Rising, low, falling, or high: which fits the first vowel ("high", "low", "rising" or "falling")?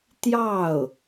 falling